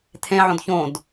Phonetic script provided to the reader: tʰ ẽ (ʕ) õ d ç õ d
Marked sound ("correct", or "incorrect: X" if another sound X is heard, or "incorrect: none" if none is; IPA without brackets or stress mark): correct